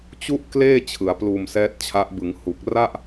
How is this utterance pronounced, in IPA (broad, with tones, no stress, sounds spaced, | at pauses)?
t͡ɕ u˥˩ ʔ k l eː˥˩ t͡ɕʰ ɯ˩˦ a̯ p l uː˧ m s ɛː˦˥ t̚ t͡ɕʰ a˦˥ ʔ b ɯ˩˦ ŋ h u˨˩ k̚ r a˥˩ ʔ